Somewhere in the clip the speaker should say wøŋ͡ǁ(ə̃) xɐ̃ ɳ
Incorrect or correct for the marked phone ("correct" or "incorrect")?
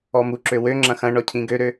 incorrect